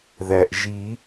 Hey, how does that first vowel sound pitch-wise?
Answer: low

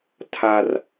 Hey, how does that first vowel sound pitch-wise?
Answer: high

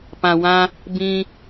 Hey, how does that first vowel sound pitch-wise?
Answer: low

